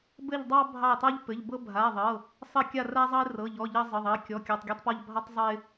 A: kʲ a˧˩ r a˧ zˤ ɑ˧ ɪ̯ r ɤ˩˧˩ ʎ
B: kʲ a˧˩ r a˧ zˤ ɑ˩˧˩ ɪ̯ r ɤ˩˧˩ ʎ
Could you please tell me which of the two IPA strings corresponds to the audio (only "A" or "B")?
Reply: A